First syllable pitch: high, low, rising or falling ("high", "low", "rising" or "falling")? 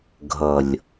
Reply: low